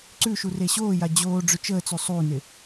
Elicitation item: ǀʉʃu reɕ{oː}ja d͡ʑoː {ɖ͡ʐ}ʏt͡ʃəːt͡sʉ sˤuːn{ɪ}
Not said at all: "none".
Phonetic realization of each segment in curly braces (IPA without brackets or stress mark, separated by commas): oː, ɖ͡ʐ, ɪ